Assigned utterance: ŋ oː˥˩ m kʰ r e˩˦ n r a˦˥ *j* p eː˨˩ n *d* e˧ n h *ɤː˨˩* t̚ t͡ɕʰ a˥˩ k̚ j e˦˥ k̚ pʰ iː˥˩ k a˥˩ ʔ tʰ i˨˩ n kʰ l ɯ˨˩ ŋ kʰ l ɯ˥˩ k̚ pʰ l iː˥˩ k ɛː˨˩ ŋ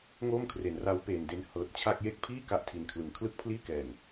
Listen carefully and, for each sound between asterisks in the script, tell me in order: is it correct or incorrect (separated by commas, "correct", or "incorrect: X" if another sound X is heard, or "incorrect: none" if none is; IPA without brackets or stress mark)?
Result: incorrect: w, correct, correct